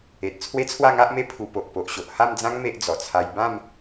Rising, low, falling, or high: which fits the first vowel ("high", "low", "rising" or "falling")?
low